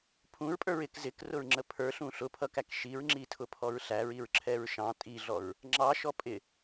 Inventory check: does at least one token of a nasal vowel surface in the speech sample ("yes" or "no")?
yes